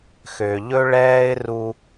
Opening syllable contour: low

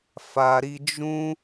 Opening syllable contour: low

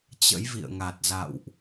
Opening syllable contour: rising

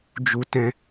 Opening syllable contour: high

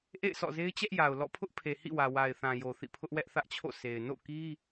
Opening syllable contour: falling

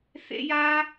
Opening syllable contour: high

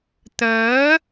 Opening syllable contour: rising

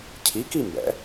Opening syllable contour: rising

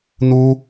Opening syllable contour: high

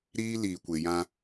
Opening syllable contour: high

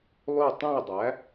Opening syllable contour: falling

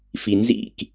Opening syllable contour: low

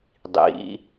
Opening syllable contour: rising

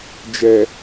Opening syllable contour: low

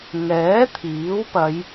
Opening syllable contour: rising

